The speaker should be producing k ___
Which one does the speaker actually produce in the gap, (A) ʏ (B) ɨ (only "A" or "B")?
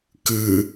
B